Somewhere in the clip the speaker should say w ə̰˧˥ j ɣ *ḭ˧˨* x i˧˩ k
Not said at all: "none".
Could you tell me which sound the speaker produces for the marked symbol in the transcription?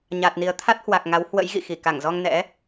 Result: ḭ˧˨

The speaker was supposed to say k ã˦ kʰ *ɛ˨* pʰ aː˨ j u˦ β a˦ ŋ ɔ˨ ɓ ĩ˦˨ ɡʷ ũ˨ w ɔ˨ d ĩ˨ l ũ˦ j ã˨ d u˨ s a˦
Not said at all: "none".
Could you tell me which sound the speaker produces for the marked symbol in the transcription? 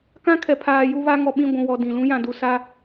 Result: ɛ˨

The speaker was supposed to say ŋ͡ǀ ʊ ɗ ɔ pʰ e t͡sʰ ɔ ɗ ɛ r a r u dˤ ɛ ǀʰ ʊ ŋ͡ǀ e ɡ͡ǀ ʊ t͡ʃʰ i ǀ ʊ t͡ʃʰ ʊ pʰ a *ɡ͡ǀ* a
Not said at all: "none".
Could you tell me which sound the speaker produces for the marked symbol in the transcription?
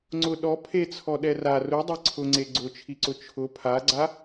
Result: ɡ͡ǀ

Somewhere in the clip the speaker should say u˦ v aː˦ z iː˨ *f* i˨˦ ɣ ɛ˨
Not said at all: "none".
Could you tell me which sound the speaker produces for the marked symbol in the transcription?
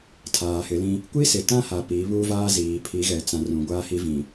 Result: pʰ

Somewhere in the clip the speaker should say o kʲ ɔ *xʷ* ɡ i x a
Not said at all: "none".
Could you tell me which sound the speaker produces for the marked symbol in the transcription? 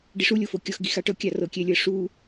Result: x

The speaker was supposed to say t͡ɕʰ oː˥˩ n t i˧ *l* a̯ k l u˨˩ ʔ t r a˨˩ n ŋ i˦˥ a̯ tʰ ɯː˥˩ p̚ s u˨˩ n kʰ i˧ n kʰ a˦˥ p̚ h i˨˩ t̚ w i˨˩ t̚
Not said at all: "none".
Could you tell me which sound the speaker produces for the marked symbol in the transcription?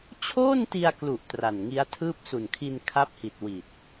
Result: none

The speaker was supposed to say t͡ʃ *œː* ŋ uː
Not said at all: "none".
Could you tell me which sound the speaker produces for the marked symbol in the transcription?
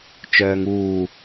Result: œː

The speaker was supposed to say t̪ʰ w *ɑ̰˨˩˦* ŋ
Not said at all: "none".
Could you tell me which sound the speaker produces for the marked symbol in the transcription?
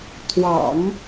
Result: ɑ̰˨˩˦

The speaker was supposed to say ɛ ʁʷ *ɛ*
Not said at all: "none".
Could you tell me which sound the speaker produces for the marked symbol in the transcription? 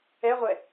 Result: ɛ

